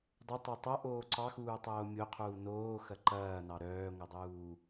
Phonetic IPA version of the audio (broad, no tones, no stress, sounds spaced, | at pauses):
dˤ ɐ tˤ ɐ tˤ o ʔ oː ǀ ɑ x uː tˤ oː mʲ o qʰ uː n oː x ɐ ǃ ɐː n ɑ ɾ œː ŋʷ ɐ dˤ uː